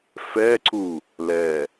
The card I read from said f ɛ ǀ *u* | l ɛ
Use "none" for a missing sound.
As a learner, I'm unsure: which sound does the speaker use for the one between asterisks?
u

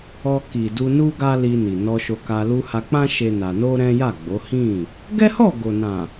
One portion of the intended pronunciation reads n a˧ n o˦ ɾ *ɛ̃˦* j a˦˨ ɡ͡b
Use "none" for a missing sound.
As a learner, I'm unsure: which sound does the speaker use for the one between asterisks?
ɛ̃˦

